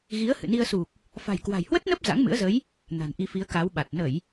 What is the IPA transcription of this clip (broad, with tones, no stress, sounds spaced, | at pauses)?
ɣ i˨˦ ə̯ h ɨ̰˧˨ n i˧ ə̯ s u˨˩ k̚ | f a̤˨˩ j k w a̤˨˩ j h w ə˦˥ t̚ n ə˦˥ p̚ z a̰˧˥ ŋ m ɨ̰˧˥ ə̯ z ə˨˦ j | n a̤˨˩ n ʔ i˧ f i˨˦ ə̯ k a˨˦ w ɓ a˨˩ t̚ n ə˧˩˨ j